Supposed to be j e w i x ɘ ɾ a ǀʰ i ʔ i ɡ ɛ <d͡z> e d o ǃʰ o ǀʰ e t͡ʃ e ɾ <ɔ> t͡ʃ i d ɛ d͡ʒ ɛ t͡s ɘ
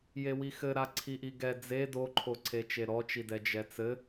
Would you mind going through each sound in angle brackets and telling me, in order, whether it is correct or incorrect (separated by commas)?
correct, correct